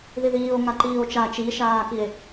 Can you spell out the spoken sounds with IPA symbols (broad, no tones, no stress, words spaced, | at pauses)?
ðiðiːo̯ ŋaǃiːo̯t͡ʃa t͡ʃiʃaːkie̯